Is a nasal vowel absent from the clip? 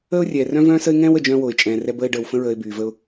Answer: no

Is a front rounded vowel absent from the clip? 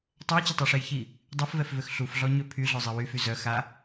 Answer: no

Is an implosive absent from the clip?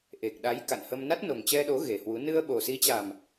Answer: no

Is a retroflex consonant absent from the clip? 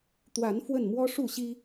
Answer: no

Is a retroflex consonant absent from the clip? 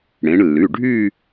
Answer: no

